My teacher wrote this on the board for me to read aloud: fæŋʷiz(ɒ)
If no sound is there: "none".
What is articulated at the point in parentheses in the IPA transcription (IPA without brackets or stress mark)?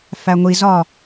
ɒ